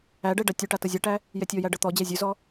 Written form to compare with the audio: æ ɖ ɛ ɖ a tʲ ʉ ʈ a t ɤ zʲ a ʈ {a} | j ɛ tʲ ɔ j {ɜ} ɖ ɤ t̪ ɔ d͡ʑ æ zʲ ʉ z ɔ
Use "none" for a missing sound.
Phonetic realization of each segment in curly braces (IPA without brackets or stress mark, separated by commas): æ, æ